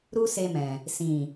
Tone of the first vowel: high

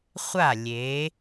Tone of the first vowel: falling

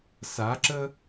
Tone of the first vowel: rising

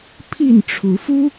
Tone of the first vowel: falling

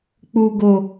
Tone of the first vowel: low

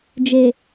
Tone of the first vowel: low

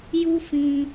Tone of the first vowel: high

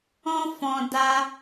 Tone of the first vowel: high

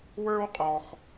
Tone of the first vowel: high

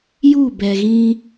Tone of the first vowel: falling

